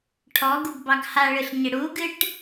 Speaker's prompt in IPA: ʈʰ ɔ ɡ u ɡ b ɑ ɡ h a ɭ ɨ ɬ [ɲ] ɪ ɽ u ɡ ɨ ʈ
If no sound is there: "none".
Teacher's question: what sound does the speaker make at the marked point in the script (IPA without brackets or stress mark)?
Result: ɲ